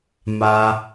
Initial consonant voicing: voiced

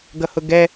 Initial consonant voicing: voiced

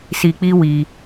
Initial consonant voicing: voiceless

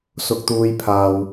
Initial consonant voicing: voiceless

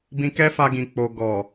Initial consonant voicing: voiced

